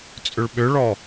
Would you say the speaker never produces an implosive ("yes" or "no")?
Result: no